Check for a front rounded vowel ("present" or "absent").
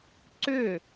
present